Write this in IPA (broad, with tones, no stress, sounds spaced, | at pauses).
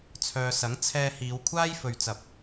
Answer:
t͡sʰ œː˨ s ɐ˨˥ ŋ t͡sʰ ɛː˧ h iː˨˧ w kʷʰ aː˥ j f ɵ˨ ɥ t͡s ɐ˨ p̚